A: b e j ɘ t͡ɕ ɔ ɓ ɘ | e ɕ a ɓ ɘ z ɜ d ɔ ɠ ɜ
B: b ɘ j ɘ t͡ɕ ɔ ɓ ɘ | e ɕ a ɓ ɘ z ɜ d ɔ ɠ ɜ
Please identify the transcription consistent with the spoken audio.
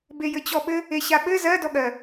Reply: A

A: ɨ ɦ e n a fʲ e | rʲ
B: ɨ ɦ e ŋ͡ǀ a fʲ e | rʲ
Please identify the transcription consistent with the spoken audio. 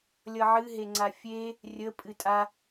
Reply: B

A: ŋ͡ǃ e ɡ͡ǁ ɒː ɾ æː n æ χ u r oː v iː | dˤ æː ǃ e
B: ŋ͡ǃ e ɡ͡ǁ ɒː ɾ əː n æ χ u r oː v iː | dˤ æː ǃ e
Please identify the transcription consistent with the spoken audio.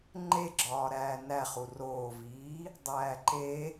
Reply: A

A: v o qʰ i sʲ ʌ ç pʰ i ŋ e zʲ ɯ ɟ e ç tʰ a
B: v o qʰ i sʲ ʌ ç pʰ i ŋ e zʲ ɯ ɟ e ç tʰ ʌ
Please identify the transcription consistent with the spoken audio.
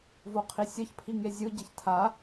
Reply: A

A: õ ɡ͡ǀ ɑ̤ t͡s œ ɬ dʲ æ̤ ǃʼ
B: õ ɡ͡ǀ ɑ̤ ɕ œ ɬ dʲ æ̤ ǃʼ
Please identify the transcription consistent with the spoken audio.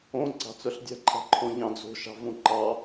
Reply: A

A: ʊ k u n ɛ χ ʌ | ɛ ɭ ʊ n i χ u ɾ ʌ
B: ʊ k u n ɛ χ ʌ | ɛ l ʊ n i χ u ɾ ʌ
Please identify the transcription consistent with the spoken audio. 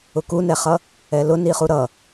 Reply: B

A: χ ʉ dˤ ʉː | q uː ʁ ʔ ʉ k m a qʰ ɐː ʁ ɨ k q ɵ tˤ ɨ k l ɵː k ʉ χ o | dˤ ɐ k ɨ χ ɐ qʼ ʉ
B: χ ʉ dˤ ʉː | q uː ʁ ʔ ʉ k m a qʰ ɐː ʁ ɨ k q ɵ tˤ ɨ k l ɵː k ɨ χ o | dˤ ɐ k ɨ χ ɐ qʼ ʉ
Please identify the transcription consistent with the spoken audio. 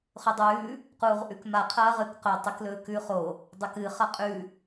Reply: A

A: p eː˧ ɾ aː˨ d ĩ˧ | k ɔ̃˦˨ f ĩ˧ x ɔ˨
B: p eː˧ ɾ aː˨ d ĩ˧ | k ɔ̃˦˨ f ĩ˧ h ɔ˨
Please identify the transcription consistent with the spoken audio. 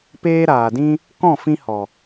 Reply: B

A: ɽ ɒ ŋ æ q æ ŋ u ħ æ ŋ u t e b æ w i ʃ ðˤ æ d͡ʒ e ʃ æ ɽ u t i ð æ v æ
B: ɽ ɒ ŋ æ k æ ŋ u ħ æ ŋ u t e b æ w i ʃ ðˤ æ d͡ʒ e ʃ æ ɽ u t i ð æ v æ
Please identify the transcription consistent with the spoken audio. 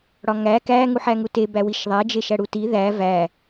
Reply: B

